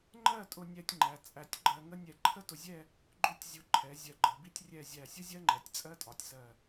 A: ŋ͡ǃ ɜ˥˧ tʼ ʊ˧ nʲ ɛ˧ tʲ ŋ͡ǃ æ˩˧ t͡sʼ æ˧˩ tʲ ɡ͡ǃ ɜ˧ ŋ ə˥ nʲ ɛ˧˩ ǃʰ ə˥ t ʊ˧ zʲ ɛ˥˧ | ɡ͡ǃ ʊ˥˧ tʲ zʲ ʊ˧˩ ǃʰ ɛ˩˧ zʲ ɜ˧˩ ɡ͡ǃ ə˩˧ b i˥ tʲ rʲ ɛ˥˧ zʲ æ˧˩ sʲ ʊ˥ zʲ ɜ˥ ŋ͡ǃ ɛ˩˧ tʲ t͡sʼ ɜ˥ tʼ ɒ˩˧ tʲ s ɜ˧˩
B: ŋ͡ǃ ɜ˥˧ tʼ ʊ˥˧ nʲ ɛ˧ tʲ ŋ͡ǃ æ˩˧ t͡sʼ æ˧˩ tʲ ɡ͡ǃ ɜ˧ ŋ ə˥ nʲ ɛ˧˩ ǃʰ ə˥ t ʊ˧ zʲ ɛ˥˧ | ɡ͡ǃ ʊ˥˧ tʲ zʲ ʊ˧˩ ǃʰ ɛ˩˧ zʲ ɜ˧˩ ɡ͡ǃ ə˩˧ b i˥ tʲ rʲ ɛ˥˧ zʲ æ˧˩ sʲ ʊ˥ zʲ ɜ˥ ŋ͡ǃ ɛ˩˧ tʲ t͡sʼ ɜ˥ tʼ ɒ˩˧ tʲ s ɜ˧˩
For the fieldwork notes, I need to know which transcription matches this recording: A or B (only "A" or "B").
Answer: A